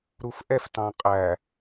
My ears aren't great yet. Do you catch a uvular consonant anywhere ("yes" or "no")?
yes